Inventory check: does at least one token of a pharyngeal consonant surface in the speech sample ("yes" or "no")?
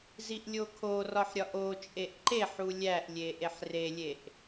yes